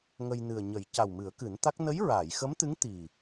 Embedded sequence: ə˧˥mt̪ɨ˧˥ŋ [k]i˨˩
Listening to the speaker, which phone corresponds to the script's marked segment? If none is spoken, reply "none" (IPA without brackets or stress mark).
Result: t̪